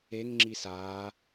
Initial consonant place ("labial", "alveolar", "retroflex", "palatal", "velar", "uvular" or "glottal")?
velar